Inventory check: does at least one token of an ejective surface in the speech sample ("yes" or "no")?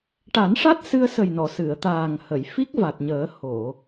no